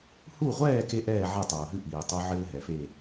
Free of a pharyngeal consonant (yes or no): no